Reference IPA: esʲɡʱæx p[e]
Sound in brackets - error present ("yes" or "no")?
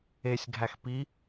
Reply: yes